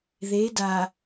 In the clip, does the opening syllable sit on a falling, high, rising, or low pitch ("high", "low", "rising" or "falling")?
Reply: rising